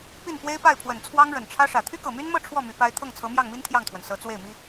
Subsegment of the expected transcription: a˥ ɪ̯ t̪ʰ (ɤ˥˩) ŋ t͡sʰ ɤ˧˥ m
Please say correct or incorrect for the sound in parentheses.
correct